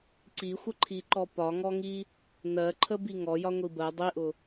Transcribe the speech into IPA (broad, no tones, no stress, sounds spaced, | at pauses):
ǀ i xʷ ə ǃʰ i ǃ ɔ p ɒ ŋ ɔ ŋ i | n ɜ ǃʰ ə b i ŋ ɔ j ɒ ŋʷ i b ɜ dˤ i ʔ ʊ